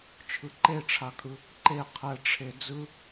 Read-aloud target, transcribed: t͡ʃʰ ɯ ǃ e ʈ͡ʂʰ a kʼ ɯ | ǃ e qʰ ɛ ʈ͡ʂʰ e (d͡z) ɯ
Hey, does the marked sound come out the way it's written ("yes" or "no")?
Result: yes